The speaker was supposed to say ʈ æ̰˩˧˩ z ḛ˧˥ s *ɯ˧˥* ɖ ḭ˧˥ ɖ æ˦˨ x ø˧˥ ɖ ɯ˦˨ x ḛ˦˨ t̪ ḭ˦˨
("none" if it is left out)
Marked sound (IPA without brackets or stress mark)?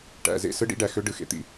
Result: ɯ˧˥